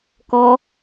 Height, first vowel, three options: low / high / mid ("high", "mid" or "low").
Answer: mid